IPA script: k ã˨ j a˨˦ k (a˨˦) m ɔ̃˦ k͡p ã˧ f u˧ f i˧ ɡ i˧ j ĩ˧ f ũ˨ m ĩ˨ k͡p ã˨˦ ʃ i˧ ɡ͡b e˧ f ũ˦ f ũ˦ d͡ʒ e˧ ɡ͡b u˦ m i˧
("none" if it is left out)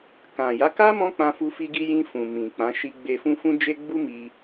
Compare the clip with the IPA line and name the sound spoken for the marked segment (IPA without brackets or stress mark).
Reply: a˦